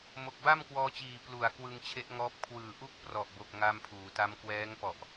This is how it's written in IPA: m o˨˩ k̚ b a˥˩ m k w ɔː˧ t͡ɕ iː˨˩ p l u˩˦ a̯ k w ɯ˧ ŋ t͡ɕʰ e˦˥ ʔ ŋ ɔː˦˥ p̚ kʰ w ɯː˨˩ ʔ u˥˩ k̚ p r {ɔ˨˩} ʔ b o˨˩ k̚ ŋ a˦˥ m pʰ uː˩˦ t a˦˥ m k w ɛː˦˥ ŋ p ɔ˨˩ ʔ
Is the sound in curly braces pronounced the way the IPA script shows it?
yes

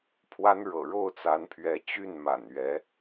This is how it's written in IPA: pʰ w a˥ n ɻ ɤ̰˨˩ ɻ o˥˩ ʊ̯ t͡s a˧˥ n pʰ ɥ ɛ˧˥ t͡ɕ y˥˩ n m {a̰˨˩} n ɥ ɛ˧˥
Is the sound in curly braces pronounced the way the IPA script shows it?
yes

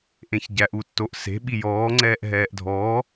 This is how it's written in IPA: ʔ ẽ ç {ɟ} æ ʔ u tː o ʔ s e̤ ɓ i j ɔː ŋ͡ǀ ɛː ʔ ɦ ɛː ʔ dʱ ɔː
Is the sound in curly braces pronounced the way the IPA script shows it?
yes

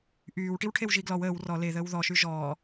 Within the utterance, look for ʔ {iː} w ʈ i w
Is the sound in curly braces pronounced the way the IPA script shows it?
no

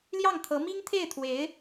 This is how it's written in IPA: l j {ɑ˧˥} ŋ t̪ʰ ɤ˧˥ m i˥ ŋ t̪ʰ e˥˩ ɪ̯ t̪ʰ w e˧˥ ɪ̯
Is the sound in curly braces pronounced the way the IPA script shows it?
no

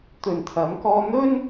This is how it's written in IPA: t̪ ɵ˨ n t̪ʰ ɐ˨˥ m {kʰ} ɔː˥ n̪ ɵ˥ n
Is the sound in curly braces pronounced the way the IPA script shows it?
no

